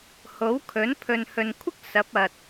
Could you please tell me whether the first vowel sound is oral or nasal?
oral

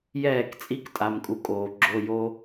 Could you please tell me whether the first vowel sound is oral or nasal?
oral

